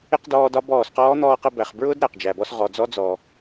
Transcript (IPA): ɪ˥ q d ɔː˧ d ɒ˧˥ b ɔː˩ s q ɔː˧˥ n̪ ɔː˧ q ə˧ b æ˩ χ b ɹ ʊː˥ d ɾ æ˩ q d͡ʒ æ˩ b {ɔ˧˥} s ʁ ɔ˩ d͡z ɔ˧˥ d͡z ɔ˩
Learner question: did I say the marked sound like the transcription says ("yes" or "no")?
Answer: no